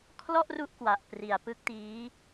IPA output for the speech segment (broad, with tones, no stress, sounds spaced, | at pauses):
kʰ l ɔ˥˩ ʔ r u˥˩ ʔ k w a˨˩ ʔ p r i˨˩ a̯ p ɯ˦˥ k̚ t iː˦˥